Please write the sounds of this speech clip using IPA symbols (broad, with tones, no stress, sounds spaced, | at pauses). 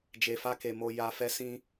d͡ʒ e˧ f a˦ k e˧ m o˧ j a˧ f ɛ˦ s ĩ˦